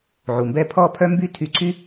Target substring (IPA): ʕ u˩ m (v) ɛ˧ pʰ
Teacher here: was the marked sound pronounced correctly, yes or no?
no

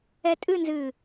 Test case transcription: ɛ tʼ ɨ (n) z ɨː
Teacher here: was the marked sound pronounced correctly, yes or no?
yes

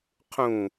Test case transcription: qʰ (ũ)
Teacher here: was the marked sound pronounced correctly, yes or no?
yes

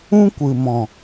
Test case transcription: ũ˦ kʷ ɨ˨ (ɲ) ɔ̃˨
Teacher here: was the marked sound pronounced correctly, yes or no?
no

